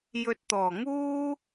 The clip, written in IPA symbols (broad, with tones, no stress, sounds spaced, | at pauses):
j ɵ˨ t̚ t̪ ɔː˨˩ ŋ uː˥